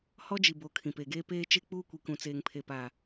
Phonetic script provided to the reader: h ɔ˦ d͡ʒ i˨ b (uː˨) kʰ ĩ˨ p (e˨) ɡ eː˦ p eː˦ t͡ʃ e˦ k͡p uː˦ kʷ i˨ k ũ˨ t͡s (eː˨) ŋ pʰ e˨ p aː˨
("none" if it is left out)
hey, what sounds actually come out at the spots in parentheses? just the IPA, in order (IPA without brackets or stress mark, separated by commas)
oː˨, e˨, eː˨